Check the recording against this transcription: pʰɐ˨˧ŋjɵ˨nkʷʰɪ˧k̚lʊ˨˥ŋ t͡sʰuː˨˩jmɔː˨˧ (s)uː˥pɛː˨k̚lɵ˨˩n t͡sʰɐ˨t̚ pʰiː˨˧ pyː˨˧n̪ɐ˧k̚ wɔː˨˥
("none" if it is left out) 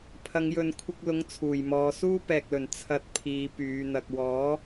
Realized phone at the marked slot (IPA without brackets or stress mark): s